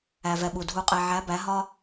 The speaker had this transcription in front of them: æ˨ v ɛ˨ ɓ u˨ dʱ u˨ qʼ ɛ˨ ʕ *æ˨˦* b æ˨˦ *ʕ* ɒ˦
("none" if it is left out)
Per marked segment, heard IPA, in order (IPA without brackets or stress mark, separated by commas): æ˨˦, ɦ